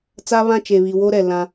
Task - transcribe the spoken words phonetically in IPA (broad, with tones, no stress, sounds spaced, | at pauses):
t͡s a˦ β ã˦ t͡ʃ e˨ β i˨ w o˦ ɾ ɛ˨ l ã˦